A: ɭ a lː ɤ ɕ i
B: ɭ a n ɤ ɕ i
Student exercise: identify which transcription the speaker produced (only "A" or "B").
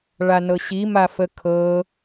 B